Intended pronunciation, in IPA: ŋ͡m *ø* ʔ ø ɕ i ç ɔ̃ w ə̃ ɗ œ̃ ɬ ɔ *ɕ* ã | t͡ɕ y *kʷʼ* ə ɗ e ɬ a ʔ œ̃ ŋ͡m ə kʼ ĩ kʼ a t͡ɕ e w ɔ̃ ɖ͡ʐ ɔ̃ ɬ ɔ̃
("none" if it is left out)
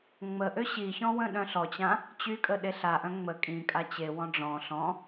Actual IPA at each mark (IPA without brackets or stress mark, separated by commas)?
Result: ə, t͡ɕ, kʼ